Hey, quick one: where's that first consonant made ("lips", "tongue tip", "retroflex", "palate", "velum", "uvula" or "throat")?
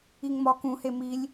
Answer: velum